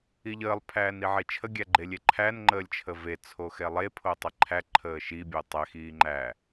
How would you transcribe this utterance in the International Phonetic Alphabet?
i ʎ əː lˠ pʰ æː n i ʕ e t͡ʃʰ ə ɡʲ æ ɡ͡ǃ e lʲ e ǃʰ æ n ŋ͡ǃ əː lʲ t͡ʃʰ ə v e t͡sʰ o x ɛ lˠ e pʰ o tˤ e ǃʰ æ ǃʰ əː ʃ i bʲ o tˤ ɛ x iː ŋ͡ǃ æ

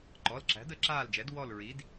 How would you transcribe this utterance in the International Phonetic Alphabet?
ǃ ɔ˩˧˩ l ǁ æ̤˩˥ d ə˧˩˧ ǁ aː˦˨ l d͡ʒ ɛ˩˥ d w ɔ˦˨ l ɹ i˩˥ d

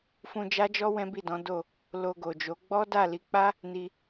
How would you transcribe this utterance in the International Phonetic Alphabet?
f ũ˧ d͡ʒ a˦ d͡ʒ ɔ˦ w ɛ̃˦ b i˦˨ d ɔ̃˨˦ d o˦˨ | l o˧ ɡ o˨ d͡ʒ o˨˦ ɡ͡b ɔ˦ d a˦˨ l i˨˦ k͡p a˦ | n i˧

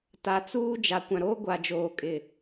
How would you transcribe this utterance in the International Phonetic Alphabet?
t a˨ t͡s uː˦ d͡ʒ a˨ kʷ ã˨ ɾ oː˦ ɡʷ a˨ d͡ʒ oː˨ kʼ ɪ˦˨

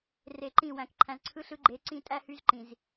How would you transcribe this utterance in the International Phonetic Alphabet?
r e˨ ǃ ĩ˦˨ w æ̃˨ k ǃʰ æ̃˨ z ǀʰ ɯ˦ ɬ ɯ˦ ɡ͡ǃ e˨˦ ǀ ĩ˦ tʼ æ˦ h y˦ z ǃ ĩ˨ z

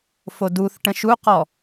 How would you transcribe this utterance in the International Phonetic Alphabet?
f o d u θ ʈ ə̃ ʃ u q ɔ

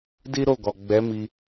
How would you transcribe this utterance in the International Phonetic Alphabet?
d i˦ ɾ o˦˨ ɡ ɔ˨ ɡ͡b ɛ˨˦ m i˧

